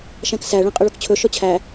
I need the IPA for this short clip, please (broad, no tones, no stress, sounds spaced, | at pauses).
ʃ æ̃ k s æ ɭ ẽ qʼ ɵ ɭ o k t͡ɕʰ ɵ ʃ ɔ t͡ɕʰ æ